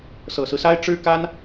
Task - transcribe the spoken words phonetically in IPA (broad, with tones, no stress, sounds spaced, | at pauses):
s ɤ˨˩ s ɹ̩˦ s a˥ ɪ̯ ʈ͡ʂ ɻ̩˥ k a˥ n